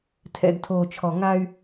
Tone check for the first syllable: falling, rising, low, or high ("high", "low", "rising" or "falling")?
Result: low